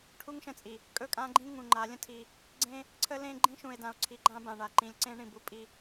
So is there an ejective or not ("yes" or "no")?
yes